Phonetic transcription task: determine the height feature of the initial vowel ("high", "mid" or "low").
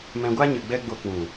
mid